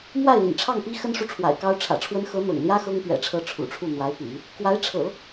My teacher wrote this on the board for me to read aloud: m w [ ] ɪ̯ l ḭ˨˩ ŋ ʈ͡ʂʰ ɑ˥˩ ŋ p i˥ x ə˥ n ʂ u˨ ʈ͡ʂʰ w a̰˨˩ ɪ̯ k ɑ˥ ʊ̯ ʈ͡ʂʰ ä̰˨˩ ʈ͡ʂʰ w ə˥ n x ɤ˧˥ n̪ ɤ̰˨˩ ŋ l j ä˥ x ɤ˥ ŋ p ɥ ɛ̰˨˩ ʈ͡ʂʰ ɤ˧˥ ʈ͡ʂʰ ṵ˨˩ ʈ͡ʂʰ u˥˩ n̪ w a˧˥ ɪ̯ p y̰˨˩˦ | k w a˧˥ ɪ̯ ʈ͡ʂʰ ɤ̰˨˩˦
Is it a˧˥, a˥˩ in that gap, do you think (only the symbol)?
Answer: a˥˩